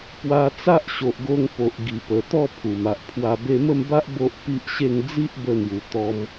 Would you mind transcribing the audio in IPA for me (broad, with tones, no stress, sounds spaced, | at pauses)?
p w a˧ t͡s a˦ ʔ ɕ o˨ ʔ ɡ o˧ ŋ p o˨ ʔ ɡ i˨˩ p ə˨˩ t̪ ɔ˥˧ pʰ u˨˩ m a˨ ʔ pʰ w a˧ b e˧ m ə˥˧ m b a˦ ʔ b o˦ ʔ p i˦ ʔ ɕ e˥˧ ŋ d͡z i˦ ʔ b ə˧ n̪ j u˨˩ t̪ ɔ˧ m